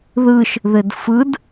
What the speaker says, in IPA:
ð ɯ ʃ | ð ɘ d f ɯ d

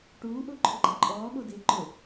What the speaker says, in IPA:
ʈ uː ʔ ʊː ǃʰ ʊ ɡ͡ǃ a ǃʼ ɔː ɠ o d ɪː ǃ ʊ

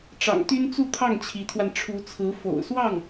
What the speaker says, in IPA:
ʈ͡ʂ ɑ̰˨˩ ŋ t̪ y˥ n t͡s u˥˧ t̪ʰ ɑ˥˩ ŋ t͡ɕʰ i˧˥ t̪ʰ w a˧ n ʈ͡ʂʰ u˧˥ t͡sʰ ɹ̩˧˥ f o̰˨˩ ʊ̯ s w ɑ˥˩ ŋ

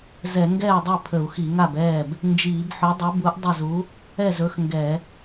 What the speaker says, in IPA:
z ɛ˧˩˧ ŋ ɡ ɛː˥˩ dˤ ø˥˩ pʰ ə˧˩˧ u̯ x i˧˩˧ ŋ a˥˩ b ɛː˥˩ b | n d͡ʒ iː˧˩˧ b ħ ɵ˨˥ dˤ u˨˥ b u˨˥ ʔ dˤ ə˥˩ z u˨˥ | ɛ˥˩ z ɵ˨˥ x ŋ ɡ ɛ˧˩˧

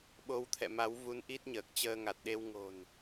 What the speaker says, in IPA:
ɓ o˧ w t̪ʰ ɛ̰˧˨ m a˨˦ w v u˨˦ n ʔ i˦˥ t̚ ɲ əː˨˩ k̚ t͡ɕ əː˧ ŋ a˨˩ t̚ ɗ e˧ w ŋ o̤˨˩ n

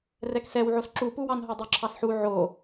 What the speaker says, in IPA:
r ɛ k s ɛ w ʕ o s ǁ u p u w ɑ n ɦ o dˤ o ǁʰ ɑ s ħ u ʕ o

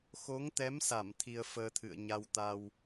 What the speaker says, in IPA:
x o˨˦ ŋ t̪ ɛ˨˦ m s a˧˩ m t̪ʰ i˧ ə̯ f əː˧ t̪ʰ ɨ̰˧˨ ə̯ ɲ a˧ w t̪ a˧ w

